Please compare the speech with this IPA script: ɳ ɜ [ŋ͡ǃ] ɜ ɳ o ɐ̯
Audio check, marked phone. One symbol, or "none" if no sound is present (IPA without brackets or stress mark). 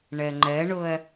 ŋ͡ǃ